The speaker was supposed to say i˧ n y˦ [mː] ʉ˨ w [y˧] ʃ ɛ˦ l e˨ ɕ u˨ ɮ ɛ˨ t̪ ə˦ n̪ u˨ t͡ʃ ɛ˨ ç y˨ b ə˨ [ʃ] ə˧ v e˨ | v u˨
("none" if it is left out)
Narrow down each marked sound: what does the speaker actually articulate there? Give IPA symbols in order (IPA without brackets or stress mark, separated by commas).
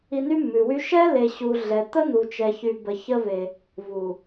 mː, y˦, ç